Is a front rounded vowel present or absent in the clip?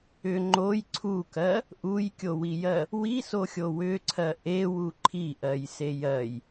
present